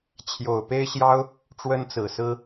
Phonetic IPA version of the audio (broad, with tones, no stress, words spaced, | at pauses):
t͡ɕʰjo˨˩ʊ̯pe˥ɪ̯ɕjɑ˥ʊ̯ | ʈ͡ʂwə˥nt͡sɹ̩˨˩sɹ̩˥